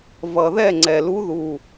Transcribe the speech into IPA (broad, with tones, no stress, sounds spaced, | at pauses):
v ʌ˨˩ ð ɛ˥˨ ŋ͡ǀ ɛ˨˩ l u˧˥ ð u˨˩